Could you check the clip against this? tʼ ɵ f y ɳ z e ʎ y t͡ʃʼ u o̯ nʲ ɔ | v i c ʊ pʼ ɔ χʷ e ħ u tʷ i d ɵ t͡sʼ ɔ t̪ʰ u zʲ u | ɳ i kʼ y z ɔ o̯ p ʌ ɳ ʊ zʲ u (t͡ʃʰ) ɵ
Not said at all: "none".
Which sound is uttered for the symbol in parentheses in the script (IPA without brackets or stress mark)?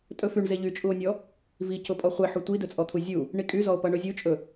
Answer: t͡ʃʼ